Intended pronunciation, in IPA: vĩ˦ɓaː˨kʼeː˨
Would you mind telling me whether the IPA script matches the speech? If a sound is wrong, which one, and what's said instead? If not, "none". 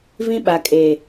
aː˨ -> a˨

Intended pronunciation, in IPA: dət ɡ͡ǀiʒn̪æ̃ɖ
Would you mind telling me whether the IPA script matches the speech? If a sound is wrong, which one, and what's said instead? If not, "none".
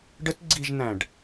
d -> ɖ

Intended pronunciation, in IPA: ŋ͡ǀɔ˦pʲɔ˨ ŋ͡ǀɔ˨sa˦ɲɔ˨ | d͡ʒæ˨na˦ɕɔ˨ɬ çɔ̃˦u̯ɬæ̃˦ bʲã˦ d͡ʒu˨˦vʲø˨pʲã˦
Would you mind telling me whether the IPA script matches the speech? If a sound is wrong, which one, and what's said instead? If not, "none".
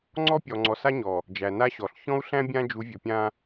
ø˨ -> ɵ˨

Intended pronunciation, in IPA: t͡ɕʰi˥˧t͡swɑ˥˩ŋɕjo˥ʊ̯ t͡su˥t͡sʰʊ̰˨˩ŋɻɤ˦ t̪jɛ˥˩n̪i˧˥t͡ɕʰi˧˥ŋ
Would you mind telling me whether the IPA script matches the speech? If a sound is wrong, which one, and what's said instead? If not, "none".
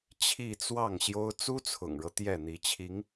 none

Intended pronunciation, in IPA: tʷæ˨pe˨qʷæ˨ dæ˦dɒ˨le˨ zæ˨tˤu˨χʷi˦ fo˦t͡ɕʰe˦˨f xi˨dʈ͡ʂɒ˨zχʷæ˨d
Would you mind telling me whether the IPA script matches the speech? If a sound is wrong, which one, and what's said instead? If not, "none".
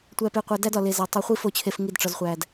x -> ŋ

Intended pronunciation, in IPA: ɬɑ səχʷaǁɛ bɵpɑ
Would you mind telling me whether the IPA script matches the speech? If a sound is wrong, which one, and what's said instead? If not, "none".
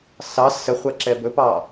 ɬ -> s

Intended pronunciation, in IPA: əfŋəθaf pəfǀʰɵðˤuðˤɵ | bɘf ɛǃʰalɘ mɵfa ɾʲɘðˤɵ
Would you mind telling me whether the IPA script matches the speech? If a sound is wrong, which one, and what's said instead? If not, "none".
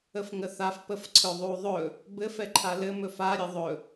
none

